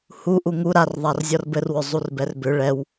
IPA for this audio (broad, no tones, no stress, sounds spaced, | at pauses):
h u ʔ u ŋ u ɾ a r ðˤ a r zʲ ɔ r b ɘ r w ʏ zˤ u r b ɛ r b ʏ ɭ ɛ w